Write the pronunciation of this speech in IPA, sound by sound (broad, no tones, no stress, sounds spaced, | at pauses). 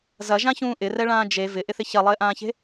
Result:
z ɐ ʒ ã ç ũː ʔ ɪ r ɛ ɭ ãː d͡ʒ e v ɪ ʔ ɪ θ ɪ ç ɐ lˠ ɪː ʔ ãː ç e̤